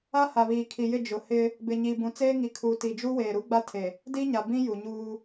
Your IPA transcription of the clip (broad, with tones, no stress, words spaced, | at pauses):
a˦ha˨βiː˨ kʰi˨jɪ˦˨ d͡ʒʊ˨hɪ˦ | bɪ˨ɲi˨ bũ˨t͡seː˦ŋi˨ kʰu˨ti˨d͡ʒu˦ weː˨ɾu˦ɡ͡ba˦tʰe˨ | di˦ɲa˨bĩ˦ ju˨ɲuː˦